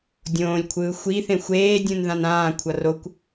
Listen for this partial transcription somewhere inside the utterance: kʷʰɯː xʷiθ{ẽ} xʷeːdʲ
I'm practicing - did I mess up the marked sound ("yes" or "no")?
no